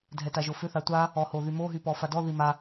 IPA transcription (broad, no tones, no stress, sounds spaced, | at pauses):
dʱ ɛ t a ʒ o f ʏ θ a tʷ a | ɔ h o ð y m o ɦ y p ɔ f a d ɔ ð i m a